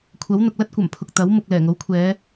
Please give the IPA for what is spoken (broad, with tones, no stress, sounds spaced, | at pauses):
kʷʰ ɐ˨˥ w n̪ ʊ˨ k̚ l ɐ˥ t̚ kʷ ɐ˨˩ m pʰ ʊ˨ k̚ t̪ ɐ˨˥ w m ʊ˨ k̚ l ɛː˨˩ ŋ o˨˥ w kʷʰ ɛː˨˧